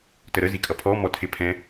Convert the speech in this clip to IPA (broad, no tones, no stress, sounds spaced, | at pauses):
t ə ɾ ə z i kʼ ʌ pʰ ɔ m ɔ tʰ ɪ pʰ ɛ̃